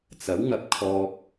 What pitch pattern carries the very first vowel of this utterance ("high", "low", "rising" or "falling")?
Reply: rising